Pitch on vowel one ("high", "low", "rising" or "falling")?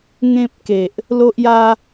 high